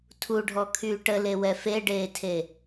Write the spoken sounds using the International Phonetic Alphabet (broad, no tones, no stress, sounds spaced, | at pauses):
tʰ u ɖʱ ɔ kʰ yː ʈ ə l e w ɛ f e ɖ eː tʰ e